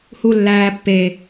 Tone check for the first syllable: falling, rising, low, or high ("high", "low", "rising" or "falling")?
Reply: high